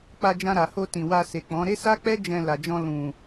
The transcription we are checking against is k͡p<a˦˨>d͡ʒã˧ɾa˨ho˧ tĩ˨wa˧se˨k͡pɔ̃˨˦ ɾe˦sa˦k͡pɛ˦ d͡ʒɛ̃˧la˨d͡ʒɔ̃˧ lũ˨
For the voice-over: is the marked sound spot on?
no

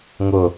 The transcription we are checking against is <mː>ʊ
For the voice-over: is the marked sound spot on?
no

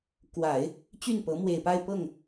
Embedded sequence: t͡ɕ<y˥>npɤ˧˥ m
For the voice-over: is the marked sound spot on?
no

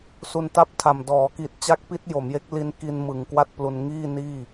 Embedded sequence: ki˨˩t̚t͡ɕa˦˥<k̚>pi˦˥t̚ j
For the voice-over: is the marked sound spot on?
yes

